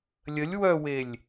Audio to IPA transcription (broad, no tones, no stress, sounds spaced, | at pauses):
lʲ ə lʲ w œ w e lʲ